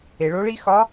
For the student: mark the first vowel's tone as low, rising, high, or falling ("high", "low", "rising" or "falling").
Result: low